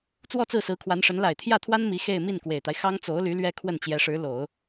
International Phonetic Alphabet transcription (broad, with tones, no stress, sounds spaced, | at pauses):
t͡s w ɔ˥˧ t͡s ɹ̩˥˩ s ɹ̩˧˥ kʰ w a˧˥ n ʂ ə˧˥ n l a˨˩ ɪ̯ t̪ʰ j ä˥˩ t̪ʰ w a˥ n m i˧˥ x e˥˧ ɪ̯ m i˥˩ n k w e˨˩ ɪ̯ t̪ a˦ ɪ̯ x ɑ˥ ŋ t͡s o˧˥ ʊ̯ l y˧˥ l ɥ ɛ˥ kʰ w ə˥˩ n t͡ɕ j ɛ˧˥ ʂ ɻ̩˧˥ l o˨˩˦ ʊ̯